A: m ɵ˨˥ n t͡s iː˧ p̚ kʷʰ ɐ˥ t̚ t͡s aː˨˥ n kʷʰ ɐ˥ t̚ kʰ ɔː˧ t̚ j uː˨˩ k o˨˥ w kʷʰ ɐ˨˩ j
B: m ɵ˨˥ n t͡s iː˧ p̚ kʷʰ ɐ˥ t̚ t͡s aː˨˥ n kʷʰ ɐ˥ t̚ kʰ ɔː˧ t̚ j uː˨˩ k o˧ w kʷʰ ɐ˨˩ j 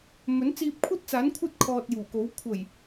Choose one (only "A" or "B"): A